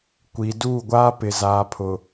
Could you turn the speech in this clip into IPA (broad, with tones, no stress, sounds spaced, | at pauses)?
kʷ i˨ d uː˦˨ ɡʷ aː˦ p ɪ˨ z aː˨ pʰ ʊ˨